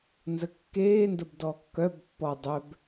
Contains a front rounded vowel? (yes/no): yes